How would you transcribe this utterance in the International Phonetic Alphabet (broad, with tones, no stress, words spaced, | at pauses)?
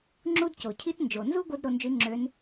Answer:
ŋ͡ǁu˥dco˩cʰi˥t nd͡ʒo˩nzu˥ɡʷɯ˧d ɾo˧nd͡ʒy˧˥ŋ͡ǁø˧˥n